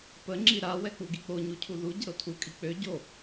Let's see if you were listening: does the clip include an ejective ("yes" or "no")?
yes